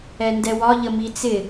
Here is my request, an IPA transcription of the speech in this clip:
ɛndɛwɒ ʎəmit͡sɪ

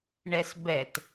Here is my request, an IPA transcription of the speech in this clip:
ɳɛsbɛt

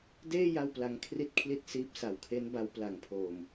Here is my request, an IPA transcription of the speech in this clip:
deː˥˩ ja˥˩wpla˦˥ŋ kʰri˥˩t̚kʰli˥˩t̚ siː˦˥p̚ sa˨˩wkʰe˦˥n ba˦˥wpla˨˩ŋpʰoː˨˩m

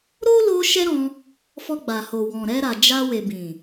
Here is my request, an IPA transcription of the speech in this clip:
ɾo˦lo˧ ʃɛ˦ɾɔ̃˧ | fɔ˧ɡ͡ba˨ho˨wɔ̃˨ ɾɛ˧ɾa˨d͡ʒa˧ we˨bĩ˨

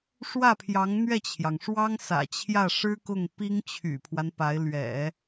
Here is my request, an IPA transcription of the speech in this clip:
ʂwä˥˩pʰjɑ˧˥ŋ n̪ɥɛ˥˩t͡ɕʰjɑ˩ŋʂwɑ˥ŋ sä̰˨˩t͡ɕʰjä˥˩ ʂɻ̩˥kʊ˥˩ŋ pi˥ŋt͡ɕʰy̰˨˩pʰwa˦npa˧˥ɪ̯ lɥɛ̰˨˩˦

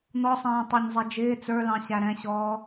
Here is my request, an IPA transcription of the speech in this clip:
n̪ɔsˤɛ̃ː tˤɑɲzˤɛd͡ʒɪː t͡sə˞lɑ̃ ɕæɾɛ̃ɕɔː

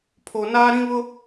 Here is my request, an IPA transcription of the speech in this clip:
pʰo˨naː˦ɾĩ˦βʊ˦

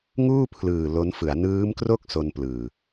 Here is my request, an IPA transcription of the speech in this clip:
ŋuː˥˩pʰlɯː˨˩ lo˦˥nfɯ˩˦a̯ nɯː˦˥mkro˥˩k̚ so˧nplɯː˨˩

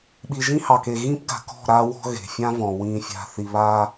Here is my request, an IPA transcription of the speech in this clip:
ɓi˨ʒĩ˦hɑ˨ke˨ ɣĩ˦pɡa̤˨kɔ̤˦˨ ɾa˦ wɔ̤˦ɣe̤˨fʲã˦vɔ̃˨ wĩ˨fʲa̤˨θi˨βa˦

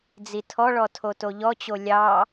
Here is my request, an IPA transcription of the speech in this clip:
d͡zitʰɔɭɔ tʰotoʎɔt͡ɕo lʲɑ

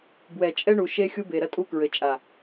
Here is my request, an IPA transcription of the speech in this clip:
bwɛ˨ t͡ʃʼɛ˦ɳu˨ ʃe˦ xʲu˦be˨ɾɐ˦tʼu˦ kɹɘ˨ t͡ʃʼa˨

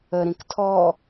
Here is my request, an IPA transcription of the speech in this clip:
ə ɾĩktʰɔ

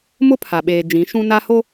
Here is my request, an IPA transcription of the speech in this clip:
mʊ˦pʰa˨ɓeː˨ d͡ʒĩ˨˦ ʃũ˦ na˦ ho˦

